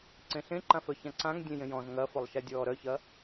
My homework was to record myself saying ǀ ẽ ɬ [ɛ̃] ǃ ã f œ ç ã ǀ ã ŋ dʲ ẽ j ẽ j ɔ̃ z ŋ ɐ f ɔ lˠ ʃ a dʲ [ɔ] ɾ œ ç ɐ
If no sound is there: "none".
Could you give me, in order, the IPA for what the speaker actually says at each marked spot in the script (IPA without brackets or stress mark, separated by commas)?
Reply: ẽ, ɔː